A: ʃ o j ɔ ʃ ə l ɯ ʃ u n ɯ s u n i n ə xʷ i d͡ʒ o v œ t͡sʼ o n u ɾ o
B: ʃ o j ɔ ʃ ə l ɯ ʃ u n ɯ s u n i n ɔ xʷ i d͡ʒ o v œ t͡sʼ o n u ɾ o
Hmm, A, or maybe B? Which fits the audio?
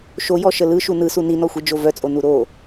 B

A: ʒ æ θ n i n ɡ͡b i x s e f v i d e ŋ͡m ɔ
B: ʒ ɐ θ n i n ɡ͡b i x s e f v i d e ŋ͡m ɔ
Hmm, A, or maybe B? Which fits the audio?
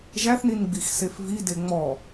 A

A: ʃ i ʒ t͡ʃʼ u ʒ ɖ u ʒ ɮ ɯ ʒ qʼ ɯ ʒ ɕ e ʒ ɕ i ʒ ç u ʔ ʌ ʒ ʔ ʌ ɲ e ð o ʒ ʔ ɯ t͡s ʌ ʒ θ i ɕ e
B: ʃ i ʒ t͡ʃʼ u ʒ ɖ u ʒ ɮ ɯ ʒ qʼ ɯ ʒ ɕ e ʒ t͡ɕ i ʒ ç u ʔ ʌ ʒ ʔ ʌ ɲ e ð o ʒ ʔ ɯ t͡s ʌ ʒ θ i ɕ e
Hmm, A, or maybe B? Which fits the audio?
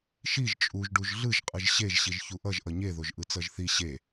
A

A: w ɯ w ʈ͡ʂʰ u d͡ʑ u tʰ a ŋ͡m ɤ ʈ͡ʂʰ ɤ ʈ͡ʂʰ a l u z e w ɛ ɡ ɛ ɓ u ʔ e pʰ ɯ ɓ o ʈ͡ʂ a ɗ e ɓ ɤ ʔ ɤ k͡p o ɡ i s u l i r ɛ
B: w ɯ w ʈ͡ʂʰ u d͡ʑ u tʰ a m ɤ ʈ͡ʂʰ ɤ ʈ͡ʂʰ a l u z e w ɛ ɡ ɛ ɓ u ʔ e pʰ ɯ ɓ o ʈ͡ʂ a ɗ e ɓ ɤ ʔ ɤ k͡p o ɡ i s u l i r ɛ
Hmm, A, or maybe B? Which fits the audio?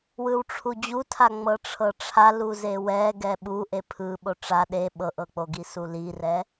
A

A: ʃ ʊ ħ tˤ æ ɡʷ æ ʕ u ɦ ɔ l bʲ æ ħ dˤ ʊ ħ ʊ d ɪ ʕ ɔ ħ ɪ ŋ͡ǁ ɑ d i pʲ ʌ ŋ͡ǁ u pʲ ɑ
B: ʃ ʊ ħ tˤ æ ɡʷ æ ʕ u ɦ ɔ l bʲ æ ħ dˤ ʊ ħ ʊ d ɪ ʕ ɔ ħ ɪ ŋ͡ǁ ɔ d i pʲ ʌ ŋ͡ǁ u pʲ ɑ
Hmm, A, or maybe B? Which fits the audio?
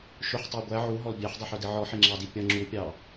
A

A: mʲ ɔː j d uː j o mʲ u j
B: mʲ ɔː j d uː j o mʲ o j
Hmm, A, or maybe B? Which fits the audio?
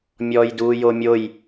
B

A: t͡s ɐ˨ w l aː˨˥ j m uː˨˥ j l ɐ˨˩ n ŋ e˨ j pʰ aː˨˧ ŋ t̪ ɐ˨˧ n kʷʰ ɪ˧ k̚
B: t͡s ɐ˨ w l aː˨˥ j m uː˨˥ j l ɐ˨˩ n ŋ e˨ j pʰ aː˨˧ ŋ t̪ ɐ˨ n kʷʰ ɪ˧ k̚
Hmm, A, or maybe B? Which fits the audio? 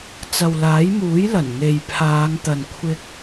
B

